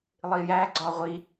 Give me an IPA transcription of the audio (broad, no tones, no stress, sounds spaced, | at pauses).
lˠ i j æ ɡ͡ǀ ɒ ʁʷ i